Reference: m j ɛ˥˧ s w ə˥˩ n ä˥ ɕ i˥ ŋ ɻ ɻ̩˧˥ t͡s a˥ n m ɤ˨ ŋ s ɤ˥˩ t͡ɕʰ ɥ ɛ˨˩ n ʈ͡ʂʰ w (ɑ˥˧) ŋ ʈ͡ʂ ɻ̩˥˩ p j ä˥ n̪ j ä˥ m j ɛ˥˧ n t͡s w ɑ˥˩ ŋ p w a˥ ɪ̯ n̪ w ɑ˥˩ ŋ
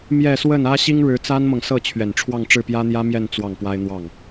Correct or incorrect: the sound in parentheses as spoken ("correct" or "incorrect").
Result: correct